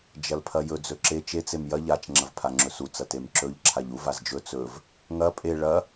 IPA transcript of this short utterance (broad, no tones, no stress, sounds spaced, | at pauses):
d͡ʒ ɐ l pʰ ɐ j ɵ d͡z ɵ ǁ e t͡ʃ e t͡s e m j ɐ ʎ a t͡ʃ ŋ͡ǁ ɐ v pʰ a ŋ͡ǁ ɵ s u t͡s ɐ t e m ǁ ɵ ʎ ǁʰ a ʎ u v a z d͡ʒ ɵ t͡s ɵ v | ŋ ɐ pʼ e ɭ ɐ